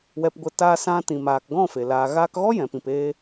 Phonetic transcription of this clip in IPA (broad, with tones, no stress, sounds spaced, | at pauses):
w ɛ˧ p ɡʷ ə˧ t aː˦ s ã˧ t ĩ˨ m aː˨ k ɡ ɔ̃˦˨ f e˨ l aː˨ ɣ aː˧ k ɣ ɔ˦ j ɛ̃˨ p ĩ˨ p eː˧